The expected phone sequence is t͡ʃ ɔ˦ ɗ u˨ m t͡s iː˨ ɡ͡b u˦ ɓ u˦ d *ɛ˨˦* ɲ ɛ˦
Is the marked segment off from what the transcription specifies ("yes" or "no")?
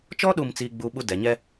no